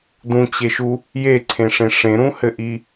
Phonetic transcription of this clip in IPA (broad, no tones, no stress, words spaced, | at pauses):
dũt͡ɕeʃu | jeǀʰẽʂẽ ʂẽɾũhɘʔi